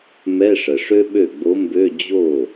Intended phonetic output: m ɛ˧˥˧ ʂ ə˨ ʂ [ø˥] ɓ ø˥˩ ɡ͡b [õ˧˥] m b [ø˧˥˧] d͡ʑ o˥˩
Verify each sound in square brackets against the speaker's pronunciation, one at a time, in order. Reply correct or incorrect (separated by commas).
correct, incorrect, correct